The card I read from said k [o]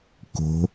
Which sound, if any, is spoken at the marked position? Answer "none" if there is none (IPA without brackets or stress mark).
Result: o̤